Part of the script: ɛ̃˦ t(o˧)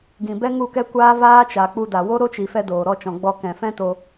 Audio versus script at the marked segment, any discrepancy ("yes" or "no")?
no